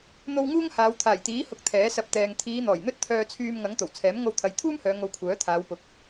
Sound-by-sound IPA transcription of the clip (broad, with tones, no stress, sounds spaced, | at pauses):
n̪ o˧ w ŋ uː˥ ŋ h aː˨˧ w t̪ʰ aː˨˩ j t̪ iː˨˥ h ʊ˨˥ k̚ t̪ʰ ɛː˨˥ s ɐ˧ p̚ t̪ ɛː˨ ŋ t̪ʰ iː˨˧ n̪ ɔː˨˩ j n̪ ɵ˥ t̚ t̪ʰ œː˧ t͡sʰ yː˧ m ŋ ɐ˨˥ ŋ t̪ o˨˩ w t͡sʰ ɛː˨˥ m ŋ o˧ w t̪ʰ ɐ˨˧ j t̪ʰ uː˥ m h œː˨˧ ŋ o˧ w kʷʰ œː˨˥ t̪ʰ aː˨˧ w p ʊ˨ k̚